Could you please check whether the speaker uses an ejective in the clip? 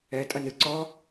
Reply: yes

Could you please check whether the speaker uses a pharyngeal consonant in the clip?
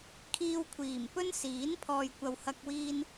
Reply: no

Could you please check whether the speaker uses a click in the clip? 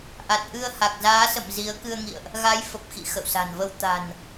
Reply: no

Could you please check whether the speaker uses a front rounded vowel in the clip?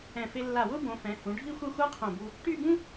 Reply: yes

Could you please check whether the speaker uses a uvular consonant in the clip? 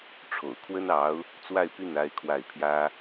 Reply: no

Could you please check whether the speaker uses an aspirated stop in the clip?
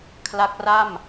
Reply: yes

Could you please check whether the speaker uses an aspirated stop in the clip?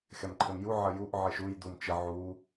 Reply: yes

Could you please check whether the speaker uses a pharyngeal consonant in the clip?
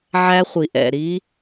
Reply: yes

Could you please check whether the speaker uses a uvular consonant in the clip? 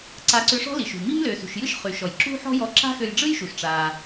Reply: yes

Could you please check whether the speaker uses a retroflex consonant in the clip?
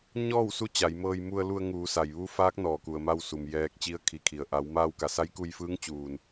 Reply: no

